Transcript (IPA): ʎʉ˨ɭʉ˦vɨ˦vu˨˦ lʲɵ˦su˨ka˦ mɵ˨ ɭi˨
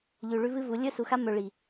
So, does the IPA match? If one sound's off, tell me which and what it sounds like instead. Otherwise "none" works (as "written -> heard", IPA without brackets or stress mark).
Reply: k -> x